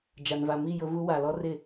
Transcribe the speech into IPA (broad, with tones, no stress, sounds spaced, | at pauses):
d͡ʒ a˨ n v a˨ m i˦˨ j ʊ˦ v u˦ w a˨ l ɔ˦ r ɪ˦˨